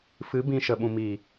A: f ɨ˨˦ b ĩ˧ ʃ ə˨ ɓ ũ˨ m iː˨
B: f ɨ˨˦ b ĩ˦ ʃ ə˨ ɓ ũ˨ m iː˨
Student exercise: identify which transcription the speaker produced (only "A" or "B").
A